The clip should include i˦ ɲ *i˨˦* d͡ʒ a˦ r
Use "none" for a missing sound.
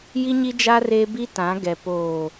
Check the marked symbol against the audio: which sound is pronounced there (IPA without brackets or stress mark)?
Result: i˦